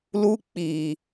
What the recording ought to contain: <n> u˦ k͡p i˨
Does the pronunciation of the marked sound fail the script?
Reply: yes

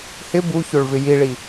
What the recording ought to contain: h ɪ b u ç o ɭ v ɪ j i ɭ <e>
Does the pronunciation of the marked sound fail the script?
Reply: yes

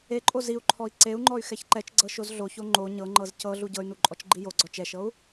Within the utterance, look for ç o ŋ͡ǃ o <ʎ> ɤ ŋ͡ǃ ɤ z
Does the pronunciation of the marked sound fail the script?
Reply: yes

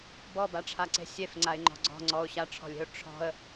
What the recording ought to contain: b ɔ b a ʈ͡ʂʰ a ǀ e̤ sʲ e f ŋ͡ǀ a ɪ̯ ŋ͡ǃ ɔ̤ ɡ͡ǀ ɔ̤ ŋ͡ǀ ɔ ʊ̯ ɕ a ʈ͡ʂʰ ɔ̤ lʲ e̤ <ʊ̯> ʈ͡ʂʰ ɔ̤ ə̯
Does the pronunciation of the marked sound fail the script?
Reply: no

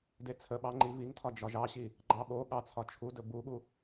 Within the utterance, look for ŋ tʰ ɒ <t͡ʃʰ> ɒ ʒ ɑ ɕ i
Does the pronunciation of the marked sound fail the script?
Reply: yes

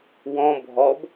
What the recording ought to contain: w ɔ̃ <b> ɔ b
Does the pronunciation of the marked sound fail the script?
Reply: yes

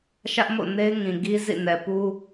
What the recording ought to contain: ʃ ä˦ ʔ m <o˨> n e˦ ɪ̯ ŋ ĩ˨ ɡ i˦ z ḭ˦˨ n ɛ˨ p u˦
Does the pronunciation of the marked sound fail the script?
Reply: yes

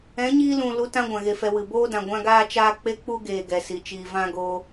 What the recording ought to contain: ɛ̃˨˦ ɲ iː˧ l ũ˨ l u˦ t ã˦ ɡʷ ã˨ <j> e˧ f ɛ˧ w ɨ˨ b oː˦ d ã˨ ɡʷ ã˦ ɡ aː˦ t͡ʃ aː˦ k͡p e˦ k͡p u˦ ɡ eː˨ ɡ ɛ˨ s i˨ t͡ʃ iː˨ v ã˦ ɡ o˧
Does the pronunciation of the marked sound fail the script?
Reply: yes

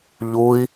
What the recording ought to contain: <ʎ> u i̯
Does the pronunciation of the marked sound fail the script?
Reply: no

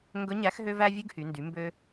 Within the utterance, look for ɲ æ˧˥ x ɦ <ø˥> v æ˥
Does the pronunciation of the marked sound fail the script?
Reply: no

